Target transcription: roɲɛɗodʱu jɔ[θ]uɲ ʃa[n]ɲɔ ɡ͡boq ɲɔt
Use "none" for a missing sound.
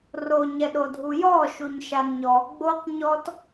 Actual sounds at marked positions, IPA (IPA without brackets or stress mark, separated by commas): ʃ, n